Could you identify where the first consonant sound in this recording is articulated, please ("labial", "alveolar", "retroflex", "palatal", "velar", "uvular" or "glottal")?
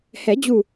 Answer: glottal